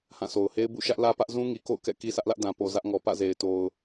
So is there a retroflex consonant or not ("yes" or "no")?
no